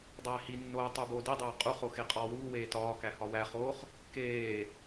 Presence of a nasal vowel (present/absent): absent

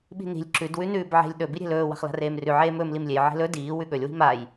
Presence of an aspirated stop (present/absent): absent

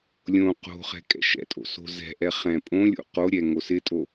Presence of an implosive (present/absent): absent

